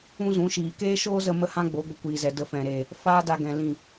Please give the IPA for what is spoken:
ũ˦zũ˨˦ʃiː˨ keː˦ʃoː˦zə˧ mə˦hã˦ɡ͡bo˨˦ ɡʷə˧kʷiː˨zɛ˨ də˧fɛ̃˨ɾeː˨ | faː˦da˧ɡɛ̃˨ lĩ˦˨

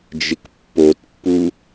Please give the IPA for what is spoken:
d͡ʒɪkpːotpːu

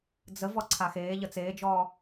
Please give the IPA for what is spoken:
d͡zə vɔǀʰaxeː ʎət͡seːd͡ʒɔː

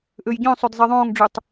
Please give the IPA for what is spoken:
ʔøjɟœ̃sˤød zˤɛðˤõːŋɖ͡ʐøtˤ

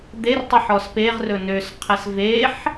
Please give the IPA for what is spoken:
d̪ertˤiħ ɔspeʁrɵ nøsqʰɛs veħ

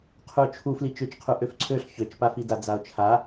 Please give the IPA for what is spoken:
qʰuo̯t͡ʃʰu flit͡ʃøt͡ʃqʰu ʔøfǀʰøɬ çøt͡ʃpafida d͡zao̯t͡ʃʰa

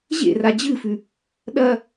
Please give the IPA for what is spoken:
ʑḛra d͡ʑɨfʉ | ɗɐ

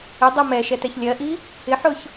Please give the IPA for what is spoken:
ɪdˤɜ mɛʃɛtɛç lʲɜʔi | ɪħʊç

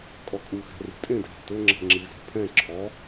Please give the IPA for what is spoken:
kʼɔkʼuxæ̤ ri̤tʼẽdʱæ̤ tɵ ŋ͡ǁɛ̤ŋ͡ǁizɛ̤ pʰɛ̃ ǁʰɔ

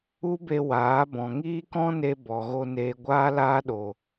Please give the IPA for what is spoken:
u˦be˧ waː˨˦ bɔ̃˨ŋiː˦kɔ̃˦ne˧ bɔ˨ɣo˧neː˧ ɡʷaː˦laː˦ɗo˧

